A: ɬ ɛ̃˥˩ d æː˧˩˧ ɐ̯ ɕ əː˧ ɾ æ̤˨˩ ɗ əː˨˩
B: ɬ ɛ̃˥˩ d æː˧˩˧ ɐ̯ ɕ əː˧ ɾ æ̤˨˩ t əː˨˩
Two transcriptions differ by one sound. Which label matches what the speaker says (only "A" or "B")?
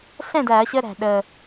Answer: A